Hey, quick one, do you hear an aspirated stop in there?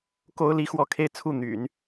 yes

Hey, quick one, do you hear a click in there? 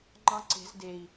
yes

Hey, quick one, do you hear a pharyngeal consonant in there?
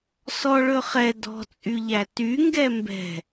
no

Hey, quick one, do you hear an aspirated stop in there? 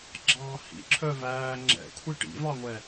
yes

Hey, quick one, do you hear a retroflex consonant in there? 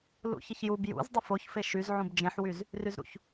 no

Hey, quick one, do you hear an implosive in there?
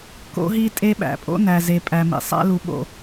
yes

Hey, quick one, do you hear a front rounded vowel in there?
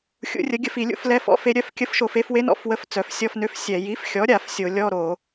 yes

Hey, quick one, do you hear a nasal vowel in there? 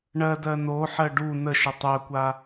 no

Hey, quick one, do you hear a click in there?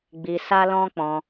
no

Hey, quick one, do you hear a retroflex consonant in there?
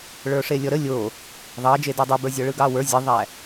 yes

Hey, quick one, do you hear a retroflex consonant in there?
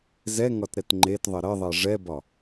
yes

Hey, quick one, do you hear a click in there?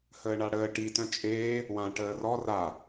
no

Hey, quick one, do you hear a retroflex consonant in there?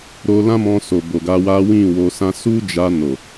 no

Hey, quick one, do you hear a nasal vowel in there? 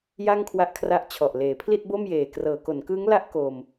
no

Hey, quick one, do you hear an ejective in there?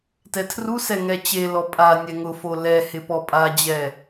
yes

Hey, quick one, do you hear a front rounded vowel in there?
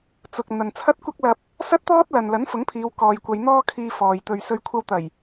no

